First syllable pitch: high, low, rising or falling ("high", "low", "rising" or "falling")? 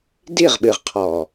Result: falling